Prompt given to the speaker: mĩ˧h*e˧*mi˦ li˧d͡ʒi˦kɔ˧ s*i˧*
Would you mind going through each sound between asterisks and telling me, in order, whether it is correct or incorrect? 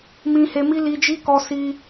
correct, correct

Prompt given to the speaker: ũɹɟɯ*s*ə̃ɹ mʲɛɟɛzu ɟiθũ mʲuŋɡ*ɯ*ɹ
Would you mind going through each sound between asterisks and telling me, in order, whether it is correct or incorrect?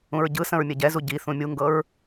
correct, incorrect

